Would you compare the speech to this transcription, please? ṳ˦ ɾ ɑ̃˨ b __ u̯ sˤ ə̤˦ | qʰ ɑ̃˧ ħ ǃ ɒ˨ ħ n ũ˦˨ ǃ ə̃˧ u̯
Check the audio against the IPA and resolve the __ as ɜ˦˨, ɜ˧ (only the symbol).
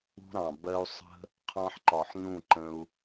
ɜ˧